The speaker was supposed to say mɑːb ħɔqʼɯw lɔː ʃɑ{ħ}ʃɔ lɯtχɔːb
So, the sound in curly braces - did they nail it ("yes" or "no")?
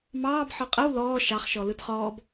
no